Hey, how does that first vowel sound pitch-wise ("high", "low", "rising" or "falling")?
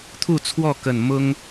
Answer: falling